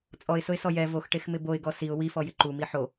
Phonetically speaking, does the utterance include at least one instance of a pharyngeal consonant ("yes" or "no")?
yes